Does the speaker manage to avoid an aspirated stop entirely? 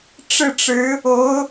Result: yes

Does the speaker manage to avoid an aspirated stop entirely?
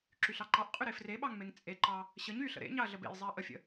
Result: yes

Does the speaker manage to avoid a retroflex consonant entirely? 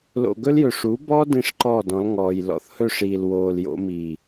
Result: no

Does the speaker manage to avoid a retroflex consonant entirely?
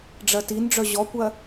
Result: no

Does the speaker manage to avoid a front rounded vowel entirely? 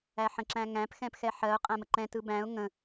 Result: yes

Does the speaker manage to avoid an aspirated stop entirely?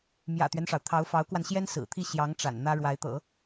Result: no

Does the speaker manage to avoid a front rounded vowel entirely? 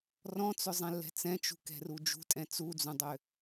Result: no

